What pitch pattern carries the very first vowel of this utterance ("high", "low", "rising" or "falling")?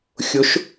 rising